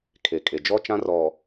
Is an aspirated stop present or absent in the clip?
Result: present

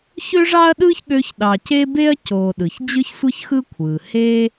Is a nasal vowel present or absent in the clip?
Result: absent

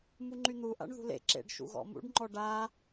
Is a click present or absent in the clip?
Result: present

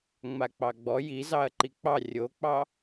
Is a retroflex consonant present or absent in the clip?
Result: absent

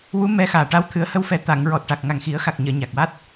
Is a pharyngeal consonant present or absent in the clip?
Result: absent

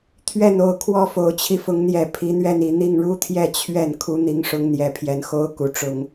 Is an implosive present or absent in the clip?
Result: absent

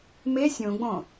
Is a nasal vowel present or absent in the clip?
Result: present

